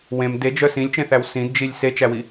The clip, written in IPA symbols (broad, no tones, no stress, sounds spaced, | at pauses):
w ẽ m d e d͡ʒ œ s ĩ lʲ t͡ʃ ẽ θ æ w s ĩ d d͡ʒ i lʲ s e t͡ʃ æ w i